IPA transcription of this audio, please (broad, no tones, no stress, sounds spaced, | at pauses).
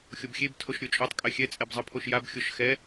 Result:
xʲ o b xʲ e b tʰ o ʃ ɾʲ o t͡ʃʼ o tˤ kʼ ɛ xʲ ɛ t͡sʼ ɛ b zˤ ɯ pʰ o ʃ j a b xʲ o ʃ x ɛ